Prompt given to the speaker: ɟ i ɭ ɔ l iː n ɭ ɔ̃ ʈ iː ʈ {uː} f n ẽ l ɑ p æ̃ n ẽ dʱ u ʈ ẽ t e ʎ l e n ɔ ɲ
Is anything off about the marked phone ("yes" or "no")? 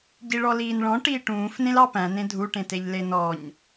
yes